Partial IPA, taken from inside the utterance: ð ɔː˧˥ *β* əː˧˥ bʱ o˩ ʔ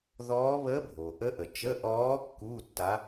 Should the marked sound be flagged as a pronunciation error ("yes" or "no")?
no